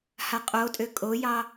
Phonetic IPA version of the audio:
h a qʼ o tʼ ø kʼ o j ɑ

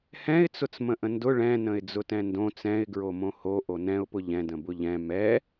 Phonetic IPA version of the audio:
h ɛ̃ ɪ̯ t͡s ʊ t͡s m ə̃ ʔ ə̃ n d ʊ ɭ ɛ̃ n ə̃ ɪ̯ d͡z ʊ t ɛ̃ n d õ t͡s ɛ̃ ɪ̯ ɡ ɹ o m õ h o ʔ o n ɛ̃ ʊ̯ p ʊ ʎ ɛ̃ d ə̃ b ʊ ʎ ɛ̃ m ɛ

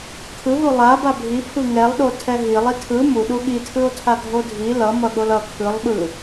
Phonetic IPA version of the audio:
kʰ ɯ ɦ u lˠ a b a bʱ i pʰ ɯ ŋ ɛ lˠ ɗ o tʰ ɛ ɦ i lˠ i tʰ ɯ m u ɗ u ɠ i tʰ ɯ o̯ tʰ a ɡʱ o dʱ i l ʌ m ʌ ɠ o l ʌ kʰ ɯ lˠ ɓ ɯ

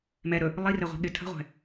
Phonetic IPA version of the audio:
m ɛ ɾ ɵ | lˠ i r ɘ ʁʷ ɛ̤ ɠ ɪ tʰ ə̤ ʁʷ ɛ̤

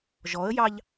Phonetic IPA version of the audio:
ʒ ɔ ə̯ j ɑ ʎ

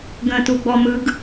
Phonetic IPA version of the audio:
ɡ ə̃ t u ɡ͡b ɔ m ɯ ɡ

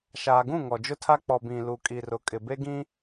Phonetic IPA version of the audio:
ʃ aː˨ ɡ ũ˦˨ ŋ ɔ˨ d͡ʒ ʊ˦ tʰ a˦ k͡p ɔ˨ b ĩ˨ l u˨ kʼ i˨ r ʊ˨ kʼ ɪ˨ b e˦ ɡ ĩ˦

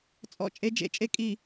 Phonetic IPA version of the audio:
t͡sʼ ɔ̰˦˨ t͡ʃʼ e˦ d͡ʒ ḛ˨˦ t͡ʃʼ e˦ kʼ i˨

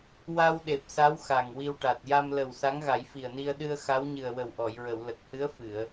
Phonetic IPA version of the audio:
w a˧ w ɗ e˨˩ p̚ s a˧˥ w x a˨˩ ŋ w i˧ w ʈ a˨˩ t̚ j a˧ m l ə˨˩ w s a˧˥ ŋ ɣ a˨˩˦ j f i˨˩ ə̯ n i˧ ə̯ ɗ ɨ˧ ə̯ x a˧˥ w ɲ ɨ˨˩ ə̯ w ə˨˩ w ʔ ɔ˨˩˨ j ɹ ə˨˩˨ w l ə˨˩ k̚ h ɨ˧˥ ə̯ f ɨ˨˩˨ ə̯

